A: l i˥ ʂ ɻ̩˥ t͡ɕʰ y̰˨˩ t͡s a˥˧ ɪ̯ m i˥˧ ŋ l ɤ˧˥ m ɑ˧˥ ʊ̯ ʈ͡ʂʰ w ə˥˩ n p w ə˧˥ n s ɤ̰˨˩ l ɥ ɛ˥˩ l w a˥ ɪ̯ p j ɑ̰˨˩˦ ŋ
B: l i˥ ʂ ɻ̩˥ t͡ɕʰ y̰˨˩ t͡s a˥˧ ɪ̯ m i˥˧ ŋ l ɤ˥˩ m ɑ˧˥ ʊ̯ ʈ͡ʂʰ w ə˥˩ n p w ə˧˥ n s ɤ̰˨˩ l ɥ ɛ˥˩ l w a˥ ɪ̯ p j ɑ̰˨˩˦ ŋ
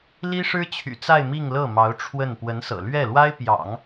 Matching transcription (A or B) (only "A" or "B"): B